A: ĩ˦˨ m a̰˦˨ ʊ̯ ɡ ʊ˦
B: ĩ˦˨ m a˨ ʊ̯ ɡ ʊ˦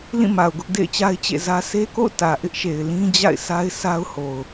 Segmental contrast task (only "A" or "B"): B